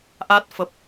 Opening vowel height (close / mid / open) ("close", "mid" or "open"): open